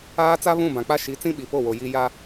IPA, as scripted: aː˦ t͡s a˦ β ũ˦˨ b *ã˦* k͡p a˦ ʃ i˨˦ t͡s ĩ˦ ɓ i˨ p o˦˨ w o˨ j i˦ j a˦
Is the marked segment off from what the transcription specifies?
yes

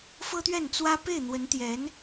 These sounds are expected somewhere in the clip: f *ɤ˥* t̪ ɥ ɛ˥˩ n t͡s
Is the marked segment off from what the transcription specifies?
no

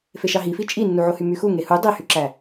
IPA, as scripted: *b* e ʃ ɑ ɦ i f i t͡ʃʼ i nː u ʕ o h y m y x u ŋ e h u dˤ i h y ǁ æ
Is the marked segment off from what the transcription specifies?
yes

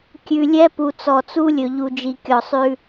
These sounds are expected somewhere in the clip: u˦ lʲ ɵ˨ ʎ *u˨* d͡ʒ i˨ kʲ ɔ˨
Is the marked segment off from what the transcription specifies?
no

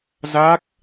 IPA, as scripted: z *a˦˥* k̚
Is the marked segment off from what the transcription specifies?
no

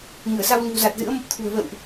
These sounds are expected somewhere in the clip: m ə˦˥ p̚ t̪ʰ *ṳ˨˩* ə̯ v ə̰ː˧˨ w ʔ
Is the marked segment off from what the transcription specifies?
no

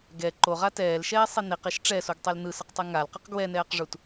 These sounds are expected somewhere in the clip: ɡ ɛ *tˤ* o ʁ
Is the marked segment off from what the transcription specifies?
yes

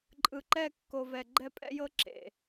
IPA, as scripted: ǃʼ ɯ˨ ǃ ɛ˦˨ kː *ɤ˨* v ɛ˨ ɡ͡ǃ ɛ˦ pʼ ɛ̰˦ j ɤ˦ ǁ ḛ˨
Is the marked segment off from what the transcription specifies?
yes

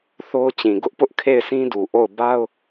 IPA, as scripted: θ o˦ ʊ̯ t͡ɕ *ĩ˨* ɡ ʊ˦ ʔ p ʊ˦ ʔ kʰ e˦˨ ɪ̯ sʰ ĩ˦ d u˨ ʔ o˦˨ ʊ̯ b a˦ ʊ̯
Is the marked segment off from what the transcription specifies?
no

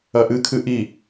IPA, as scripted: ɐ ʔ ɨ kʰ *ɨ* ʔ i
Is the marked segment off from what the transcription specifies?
no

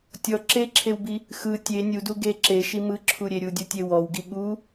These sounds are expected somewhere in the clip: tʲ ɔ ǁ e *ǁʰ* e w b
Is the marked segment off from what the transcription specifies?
no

